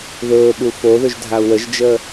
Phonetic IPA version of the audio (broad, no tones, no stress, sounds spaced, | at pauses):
ð ɵː ɓ u f o ð ɵ ʒ dʱ a u̯ w ə ʒ d͡ʒ əː